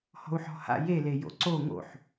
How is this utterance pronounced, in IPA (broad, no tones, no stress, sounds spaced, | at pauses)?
h ɔ̤ u̯ ħ ɔ̤ h a̰ j e l e j o̰ ǀ o ŋ o̰ ħ